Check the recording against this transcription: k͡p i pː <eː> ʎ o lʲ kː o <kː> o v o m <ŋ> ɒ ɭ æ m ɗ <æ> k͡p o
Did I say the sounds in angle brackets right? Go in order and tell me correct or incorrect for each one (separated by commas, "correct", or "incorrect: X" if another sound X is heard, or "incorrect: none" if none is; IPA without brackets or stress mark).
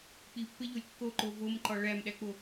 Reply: incorrect: e, incorrect: ǃ, incorrect: ǃ, correct